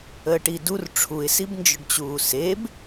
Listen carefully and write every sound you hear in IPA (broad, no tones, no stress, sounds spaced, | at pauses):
əː ʈ i d u r ʈ͡ʂʰ u ɪ̯ s i b n d͡ʒ ʊ ɖ t͡ɕ uː s e b